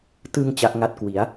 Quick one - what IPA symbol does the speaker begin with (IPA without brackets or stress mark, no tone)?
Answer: t